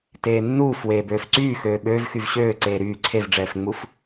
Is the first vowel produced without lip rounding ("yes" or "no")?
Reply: yes